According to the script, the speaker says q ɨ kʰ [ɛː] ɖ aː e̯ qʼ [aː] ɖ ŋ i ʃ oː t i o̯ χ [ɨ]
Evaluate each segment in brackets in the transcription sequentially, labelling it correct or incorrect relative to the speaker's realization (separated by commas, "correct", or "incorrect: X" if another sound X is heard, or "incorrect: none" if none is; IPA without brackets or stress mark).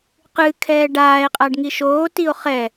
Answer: correct, incorrect: a, incorrect: ɛ